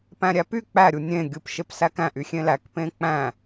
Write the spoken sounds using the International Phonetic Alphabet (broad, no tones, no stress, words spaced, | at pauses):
pæ̃ɾʲæpy k͡pæ ɾʲunʲẽ ɡʲɯp ʃepsækæ̃ ʔyxʲẽlæk pẽk͡pæ̃